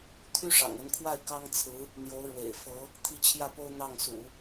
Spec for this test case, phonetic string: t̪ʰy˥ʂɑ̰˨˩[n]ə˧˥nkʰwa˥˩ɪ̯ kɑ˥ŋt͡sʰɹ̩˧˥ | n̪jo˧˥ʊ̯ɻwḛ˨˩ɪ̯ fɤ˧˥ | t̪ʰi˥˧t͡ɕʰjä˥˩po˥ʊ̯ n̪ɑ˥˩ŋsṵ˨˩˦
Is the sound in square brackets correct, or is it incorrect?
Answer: incorrect